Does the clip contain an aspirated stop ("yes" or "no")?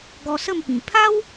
yes